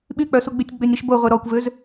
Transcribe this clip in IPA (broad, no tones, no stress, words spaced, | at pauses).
ɓyk͡pœsuɡ͡bytʲ ɡ͡bønʲɾiʃbo ʁʷeɾɔkʷvøz